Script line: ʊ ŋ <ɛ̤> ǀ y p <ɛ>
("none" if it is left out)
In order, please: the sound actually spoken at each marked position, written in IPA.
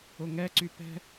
ɛ, ɛ̤

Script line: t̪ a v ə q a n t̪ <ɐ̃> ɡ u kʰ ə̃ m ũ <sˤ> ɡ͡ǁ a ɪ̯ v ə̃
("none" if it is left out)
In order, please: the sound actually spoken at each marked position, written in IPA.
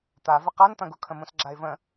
ɐ̃, s

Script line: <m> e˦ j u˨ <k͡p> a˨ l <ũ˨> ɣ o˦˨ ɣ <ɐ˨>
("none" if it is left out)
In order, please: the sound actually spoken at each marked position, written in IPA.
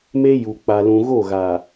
m, k͡p, ũ˨, a˨

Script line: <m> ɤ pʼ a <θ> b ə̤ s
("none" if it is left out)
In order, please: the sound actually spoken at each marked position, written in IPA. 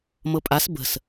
m, s

